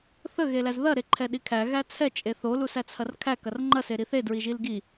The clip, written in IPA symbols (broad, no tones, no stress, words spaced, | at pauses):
θə ɣelæzðɐ ɾeǃʰɛɗikʰæ ɣæt͡sʰɛ t͡ʃʼeθo lusæt͡sʰɐrkʰæ kɐrŋ͡ǃɐ seɾiθe dɹiʒilɡi